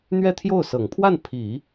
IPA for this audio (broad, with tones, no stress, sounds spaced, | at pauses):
n̪ ɥ ɛ˥˧ t̪ʰ j o˥˩ ʊ̯ s ɤ˨˩ ŋ pʰ w a˥˩ n pʰ i˨˩˦